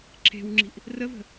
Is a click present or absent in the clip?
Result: present